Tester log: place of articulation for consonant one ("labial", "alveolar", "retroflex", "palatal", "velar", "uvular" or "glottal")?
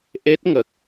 glottal